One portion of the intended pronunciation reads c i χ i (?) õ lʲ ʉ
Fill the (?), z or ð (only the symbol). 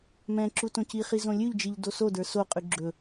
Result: z